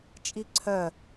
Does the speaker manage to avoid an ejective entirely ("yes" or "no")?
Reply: no